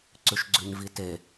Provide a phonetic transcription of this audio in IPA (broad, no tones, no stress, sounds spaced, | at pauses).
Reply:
ǀ ʉ ʃ ɡ͡ǀ ʉ ɲ v i t e